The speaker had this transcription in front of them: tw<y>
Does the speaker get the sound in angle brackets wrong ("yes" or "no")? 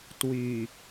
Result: no